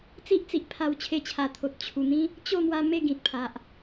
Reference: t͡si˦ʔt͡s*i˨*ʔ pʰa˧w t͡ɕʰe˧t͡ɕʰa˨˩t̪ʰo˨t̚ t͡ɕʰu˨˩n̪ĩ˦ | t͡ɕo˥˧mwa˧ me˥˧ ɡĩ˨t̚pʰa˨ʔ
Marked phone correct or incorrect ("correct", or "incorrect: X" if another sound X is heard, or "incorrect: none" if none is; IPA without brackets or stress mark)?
correct